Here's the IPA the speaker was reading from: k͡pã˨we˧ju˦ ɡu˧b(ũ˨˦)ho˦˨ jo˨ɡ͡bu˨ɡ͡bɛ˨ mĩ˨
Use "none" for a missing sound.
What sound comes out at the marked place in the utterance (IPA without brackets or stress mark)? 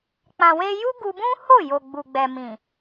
ũ˦